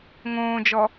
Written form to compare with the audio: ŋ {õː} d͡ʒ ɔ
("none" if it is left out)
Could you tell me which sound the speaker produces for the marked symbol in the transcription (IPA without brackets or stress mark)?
õː